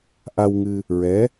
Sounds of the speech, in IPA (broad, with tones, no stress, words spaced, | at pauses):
ʔa˧wŋɨ˧ | ɹɛ˧˥